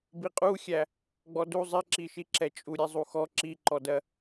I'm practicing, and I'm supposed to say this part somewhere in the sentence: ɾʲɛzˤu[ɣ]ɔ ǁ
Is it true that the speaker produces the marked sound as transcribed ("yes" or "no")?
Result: no